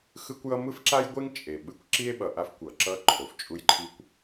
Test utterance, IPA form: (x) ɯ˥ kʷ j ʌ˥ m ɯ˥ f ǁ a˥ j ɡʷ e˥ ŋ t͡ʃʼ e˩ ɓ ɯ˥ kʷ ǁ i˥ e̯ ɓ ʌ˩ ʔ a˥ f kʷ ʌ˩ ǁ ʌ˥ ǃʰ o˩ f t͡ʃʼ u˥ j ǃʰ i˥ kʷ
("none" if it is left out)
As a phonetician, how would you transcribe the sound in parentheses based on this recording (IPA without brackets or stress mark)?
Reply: x